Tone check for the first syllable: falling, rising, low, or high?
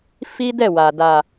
high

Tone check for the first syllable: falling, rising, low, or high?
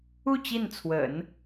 falling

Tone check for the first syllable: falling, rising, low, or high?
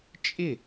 falling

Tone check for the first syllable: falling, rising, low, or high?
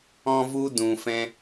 high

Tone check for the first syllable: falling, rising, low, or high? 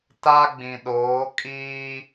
high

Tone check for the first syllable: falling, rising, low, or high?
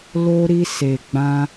high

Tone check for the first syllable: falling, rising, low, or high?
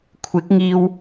rising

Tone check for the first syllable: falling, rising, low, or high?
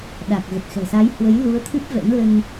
low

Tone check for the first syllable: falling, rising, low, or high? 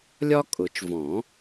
high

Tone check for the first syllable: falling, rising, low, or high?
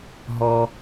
low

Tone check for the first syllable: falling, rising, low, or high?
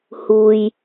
low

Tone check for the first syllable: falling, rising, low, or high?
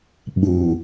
low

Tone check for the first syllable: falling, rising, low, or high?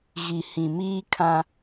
low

